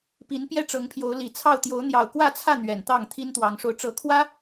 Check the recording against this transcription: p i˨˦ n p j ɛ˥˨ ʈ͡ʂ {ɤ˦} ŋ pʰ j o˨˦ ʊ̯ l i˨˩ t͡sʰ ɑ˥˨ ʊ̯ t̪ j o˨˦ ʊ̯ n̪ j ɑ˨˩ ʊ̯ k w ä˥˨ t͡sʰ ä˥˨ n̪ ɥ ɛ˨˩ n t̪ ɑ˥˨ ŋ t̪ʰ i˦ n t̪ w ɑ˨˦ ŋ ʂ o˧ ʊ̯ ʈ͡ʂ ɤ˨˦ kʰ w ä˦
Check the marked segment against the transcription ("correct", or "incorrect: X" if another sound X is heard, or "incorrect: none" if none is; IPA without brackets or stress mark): incorrect: ɤ˨˦